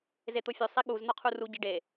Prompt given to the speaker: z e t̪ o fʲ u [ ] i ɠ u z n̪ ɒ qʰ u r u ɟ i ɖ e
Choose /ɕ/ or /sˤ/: sˤ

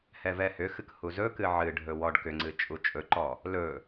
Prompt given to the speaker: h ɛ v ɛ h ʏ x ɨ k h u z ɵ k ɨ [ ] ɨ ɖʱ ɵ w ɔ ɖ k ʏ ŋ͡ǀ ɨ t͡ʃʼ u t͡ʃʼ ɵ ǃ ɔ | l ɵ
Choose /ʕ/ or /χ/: ʕ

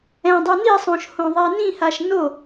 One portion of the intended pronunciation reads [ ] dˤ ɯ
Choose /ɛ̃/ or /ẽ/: ɛ̃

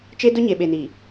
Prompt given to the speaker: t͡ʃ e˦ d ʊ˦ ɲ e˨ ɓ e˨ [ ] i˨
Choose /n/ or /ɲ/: n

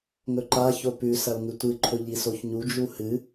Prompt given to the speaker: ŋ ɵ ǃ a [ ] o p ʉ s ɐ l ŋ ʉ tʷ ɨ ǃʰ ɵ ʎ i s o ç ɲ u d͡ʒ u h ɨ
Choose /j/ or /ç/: ç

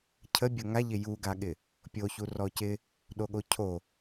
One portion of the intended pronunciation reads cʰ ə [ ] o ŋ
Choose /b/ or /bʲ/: bʲ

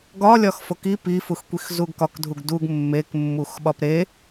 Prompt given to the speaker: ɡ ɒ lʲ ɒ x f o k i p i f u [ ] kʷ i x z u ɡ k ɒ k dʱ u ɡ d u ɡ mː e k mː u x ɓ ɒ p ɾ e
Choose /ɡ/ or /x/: x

